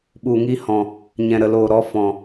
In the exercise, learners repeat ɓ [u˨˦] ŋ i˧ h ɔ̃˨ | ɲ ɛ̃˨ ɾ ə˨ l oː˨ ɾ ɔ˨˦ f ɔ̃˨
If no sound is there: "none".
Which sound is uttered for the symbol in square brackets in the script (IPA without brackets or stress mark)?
u˨